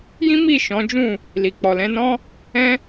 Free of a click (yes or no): yes